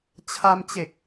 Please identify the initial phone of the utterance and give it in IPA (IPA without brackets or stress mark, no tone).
t͡ɕʰ